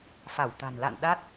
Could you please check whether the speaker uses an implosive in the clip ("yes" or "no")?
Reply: yes